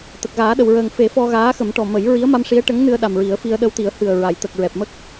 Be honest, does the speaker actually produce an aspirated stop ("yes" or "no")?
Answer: no